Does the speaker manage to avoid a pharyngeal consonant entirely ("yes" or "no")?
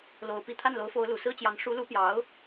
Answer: yes